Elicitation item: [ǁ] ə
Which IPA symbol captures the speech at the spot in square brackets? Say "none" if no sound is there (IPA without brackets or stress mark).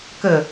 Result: k